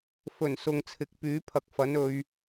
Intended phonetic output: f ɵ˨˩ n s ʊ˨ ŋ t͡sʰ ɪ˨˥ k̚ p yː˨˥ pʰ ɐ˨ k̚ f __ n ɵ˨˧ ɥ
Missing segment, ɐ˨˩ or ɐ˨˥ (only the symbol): ɐ˨˥